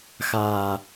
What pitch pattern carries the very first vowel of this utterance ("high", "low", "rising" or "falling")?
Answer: low